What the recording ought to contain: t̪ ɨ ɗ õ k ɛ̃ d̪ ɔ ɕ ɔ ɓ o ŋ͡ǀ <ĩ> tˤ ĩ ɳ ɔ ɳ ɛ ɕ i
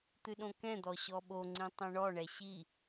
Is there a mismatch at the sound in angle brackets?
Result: no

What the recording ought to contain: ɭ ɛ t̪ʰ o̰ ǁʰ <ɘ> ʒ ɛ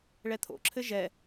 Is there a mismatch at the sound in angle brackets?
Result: no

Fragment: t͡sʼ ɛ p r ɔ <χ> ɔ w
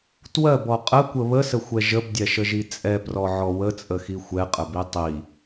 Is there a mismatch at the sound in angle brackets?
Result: yes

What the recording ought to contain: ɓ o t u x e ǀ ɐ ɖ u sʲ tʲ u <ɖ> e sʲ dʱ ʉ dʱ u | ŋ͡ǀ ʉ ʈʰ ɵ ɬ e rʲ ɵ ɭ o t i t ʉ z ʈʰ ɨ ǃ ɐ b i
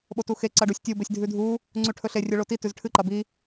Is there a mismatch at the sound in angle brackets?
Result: yes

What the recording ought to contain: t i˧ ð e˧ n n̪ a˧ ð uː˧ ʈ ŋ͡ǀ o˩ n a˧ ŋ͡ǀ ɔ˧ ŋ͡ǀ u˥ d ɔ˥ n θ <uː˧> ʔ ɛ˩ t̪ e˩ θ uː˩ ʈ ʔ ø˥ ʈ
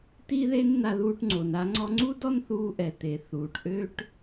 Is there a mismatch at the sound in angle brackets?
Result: no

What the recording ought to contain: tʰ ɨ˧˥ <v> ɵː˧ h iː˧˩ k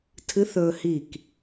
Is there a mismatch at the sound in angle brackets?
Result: yes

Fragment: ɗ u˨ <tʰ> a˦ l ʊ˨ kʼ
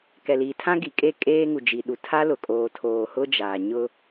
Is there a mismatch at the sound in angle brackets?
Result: no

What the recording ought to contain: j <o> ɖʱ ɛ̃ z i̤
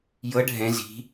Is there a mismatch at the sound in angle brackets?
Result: yes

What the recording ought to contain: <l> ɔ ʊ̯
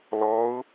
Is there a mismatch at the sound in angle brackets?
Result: no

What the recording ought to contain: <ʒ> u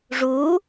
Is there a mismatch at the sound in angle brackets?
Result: yes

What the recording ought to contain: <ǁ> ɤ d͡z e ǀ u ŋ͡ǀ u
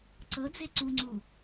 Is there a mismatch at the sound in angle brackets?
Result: yes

